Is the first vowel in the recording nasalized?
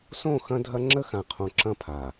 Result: yes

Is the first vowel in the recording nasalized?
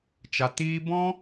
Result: no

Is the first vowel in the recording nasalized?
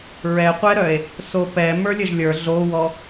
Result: no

